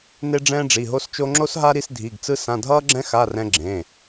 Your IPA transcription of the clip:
n e˧ ɖ͡ʐ ɛ̃ː˧ ɖ͡ʐ i˩˧˩ ɦ o˧ s t͡ʃ o˧ ŋ͡ǁ o˧ s ɦ a˧ ɾ i˧ s dʱ i˩˧˩ ɡ t͡s ɯ˧ s ã˩˧˩ dʱ ʌː˧ ɡ͡ǁ ɛ̃˧ x a˩˧˩ r ɛ̃˧ ɡ͡ǁ ẽ˩˧˩

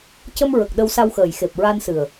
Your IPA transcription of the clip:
c ə˧ m ɹ ə˨˩ k̚ ɗ ə˧ w s a˧ w x əː˨˩ j x e˨˩ p̚ ɹ a˧ n s ɨ˨˩ ə̯

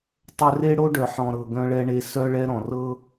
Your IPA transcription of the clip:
tˤ ɵ˧ r e˦ ɽ o˦ ɖ œ˨ ħ ɔ̃˨ ɾ ɤ˨ ɡ œ̃˧ ɭ ɛ˧ ɳ e˧ s œ˦ ɭ ɛ˦ ɾ ɔ̃˨ r ɤ˦

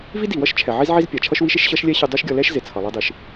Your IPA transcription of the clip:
v i˥ d i˩ w ʌ˥ ʃ t͡ʃʰ ɛ˩ ʕ i˥ z ʕ i˥ z pʲ a˩ t͡ʃʰ ʌ˥ ʃ w i˥ ʃ e˥ ʃ ɕ ʌ˥ ʃ lʲ ɛ˥ ɕ ɨ˧ dˤ o˥ ʃ ɡʲ ʌ˧ l ɛ˥ ʃ z e˩ t͡sʰ ʌ˩ lˠ i˧ dˤ ɨ˩ ʃ

